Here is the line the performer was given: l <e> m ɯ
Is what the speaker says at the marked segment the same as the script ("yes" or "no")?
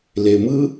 yes